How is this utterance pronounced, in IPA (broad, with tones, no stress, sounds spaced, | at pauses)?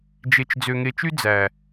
d͡ʒ e˨ t͡ʃ d͡z ø˨ ŋ e˨ t͡ʃ y˦ d͡z æ˨